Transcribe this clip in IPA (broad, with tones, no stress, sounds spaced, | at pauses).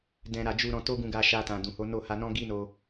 d ɛ̃˨ ɾ a˨ d͡ʒ u˨ ɾ ɔ̃˧ t o˦ ɡ ũ˧ ɡ a˧ ʃ a˧ t ã˨ d ũ˨ h o˨˦ n o˦˨ h a˧ n ɔ̃˦ ɡ i˦ n o˧